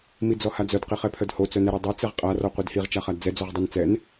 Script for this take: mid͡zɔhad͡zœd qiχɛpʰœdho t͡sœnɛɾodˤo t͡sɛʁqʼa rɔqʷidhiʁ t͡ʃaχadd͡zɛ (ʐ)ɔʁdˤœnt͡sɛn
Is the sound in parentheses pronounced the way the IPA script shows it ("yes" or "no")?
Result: no